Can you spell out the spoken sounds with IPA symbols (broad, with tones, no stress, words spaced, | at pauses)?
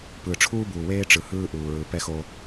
pɯː˨ʈ͡ʂʰuː˦buː˨weː˦ ʈ͡ʂɯ˨hɯː˦ʔuː˨ɹɯ˨ pɛ˦xo˦